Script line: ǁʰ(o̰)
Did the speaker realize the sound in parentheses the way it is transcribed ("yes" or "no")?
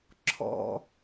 no